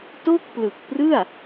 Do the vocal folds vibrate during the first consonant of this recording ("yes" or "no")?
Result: no